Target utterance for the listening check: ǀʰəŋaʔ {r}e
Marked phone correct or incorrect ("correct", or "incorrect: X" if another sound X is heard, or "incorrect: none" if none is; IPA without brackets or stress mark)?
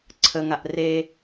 correct